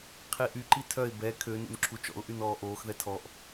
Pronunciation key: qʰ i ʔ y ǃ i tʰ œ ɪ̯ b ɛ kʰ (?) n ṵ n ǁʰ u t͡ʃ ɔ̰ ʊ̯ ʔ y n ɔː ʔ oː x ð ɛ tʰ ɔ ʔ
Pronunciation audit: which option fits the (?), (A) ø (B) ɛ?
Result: A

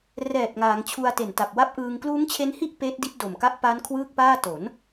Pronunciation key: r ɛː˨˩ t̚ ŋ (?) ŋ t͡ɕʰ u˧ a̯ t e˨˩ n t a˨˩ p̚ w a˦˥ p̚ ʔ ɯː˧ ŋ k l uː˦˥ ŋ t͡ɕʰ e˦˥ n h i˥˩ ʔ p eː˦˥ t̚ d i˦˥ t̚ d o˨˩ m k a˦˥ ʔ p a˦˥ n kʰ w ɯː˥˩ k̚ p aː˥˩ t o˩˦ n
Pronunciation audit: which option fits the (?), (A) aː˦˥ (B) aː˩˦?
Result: B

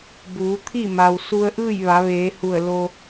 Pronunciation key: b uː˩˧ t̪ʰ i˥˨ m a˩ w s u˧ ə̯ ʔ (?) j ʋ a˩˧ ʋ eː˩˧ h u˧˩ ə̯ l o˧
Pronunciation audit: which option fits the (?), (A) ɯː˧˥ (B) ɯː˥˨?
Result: B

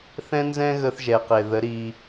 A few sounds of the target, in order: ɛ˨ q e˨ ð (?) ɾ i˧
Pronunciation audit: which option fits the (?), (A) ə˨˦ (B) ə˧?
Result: A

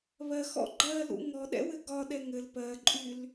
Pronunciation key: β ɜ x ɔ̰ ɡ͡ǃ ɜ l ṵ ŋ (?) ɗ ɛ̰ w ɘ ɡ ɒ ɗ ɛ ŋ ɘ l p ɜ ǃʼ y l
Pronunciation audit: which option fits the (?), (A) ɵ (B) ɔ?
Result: B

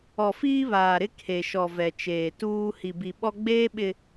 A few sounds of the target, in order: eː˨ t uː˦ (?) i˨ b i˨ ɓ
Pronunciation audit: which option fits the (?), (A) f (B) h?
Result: B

